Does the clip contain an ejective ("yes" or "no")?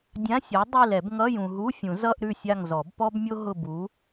no